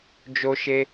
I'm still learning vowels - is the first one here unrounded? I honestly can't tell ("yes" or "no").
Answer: no